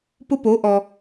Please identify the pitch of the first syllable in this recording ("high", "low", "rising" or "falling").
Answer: high